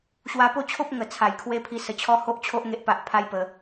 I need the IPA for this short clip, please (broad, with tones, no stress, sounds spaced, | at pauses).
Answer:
ɕ w a˧ p o˥˧ t͡ɕʰ o˦ p̚ ŋ ə˨˩ t͡sʰ a˨˩ j kʰ w e˧ pʰ i˧ s ə˧ t͡ɕʰ ɔ˦ h o˦ ʔ t͡ɕʰ o˦ ʔ ŋ e˦ ʔ p a˦ ʔ pʰ a˦ j p ə˧